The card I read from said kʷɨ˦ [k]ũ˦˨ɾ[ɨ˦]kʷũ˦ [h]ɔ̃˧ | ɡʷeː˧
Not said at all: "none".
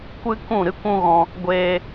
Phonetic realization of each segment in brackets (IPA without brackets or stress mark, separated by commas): k, ɨ˦, ɣ